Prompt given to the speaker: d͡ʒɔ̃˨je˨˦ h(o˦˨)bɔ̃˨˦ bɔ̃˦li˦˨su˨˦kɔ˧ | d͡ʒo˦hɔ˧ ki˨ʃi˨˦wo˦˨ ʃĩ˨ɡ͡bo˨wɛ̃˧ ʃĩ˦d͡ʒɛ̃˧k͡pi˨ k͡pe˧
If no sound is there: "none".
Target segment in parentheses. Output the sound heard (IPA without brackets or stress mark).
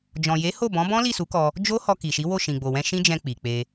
o˦˨